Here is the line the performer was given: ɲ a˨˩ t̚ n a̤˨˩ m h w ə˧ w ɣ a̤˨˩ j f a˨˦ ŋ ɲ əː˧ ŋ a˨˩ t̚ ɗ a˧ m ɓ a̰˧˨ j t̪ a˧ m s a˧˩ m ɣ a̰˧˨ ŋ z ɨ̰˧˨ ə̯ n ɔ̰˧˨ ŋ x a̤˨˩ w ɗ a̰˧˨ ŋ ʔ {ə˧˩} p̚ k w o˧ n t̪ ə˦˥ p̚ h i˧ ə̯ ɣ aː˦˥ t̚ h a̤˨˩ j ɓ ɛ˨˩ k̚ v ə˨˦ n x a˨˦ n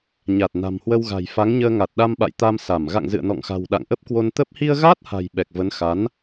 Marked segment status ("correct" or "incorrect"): incorrect